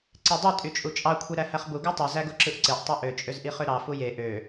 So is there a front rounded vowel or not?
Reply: yes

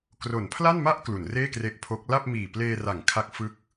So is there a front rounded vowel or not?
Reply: no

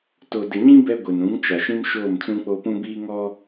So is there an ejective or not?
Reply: no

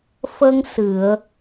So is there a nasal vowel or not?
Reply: no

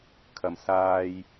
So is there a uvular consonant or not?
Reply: no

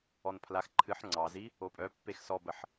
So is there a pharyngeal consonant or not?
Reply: yes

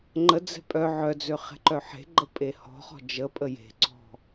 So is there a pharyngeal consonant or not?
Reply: yes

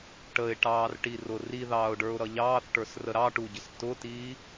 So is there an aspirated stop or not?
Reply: no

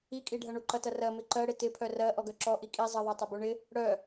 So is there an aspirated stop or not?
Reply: yes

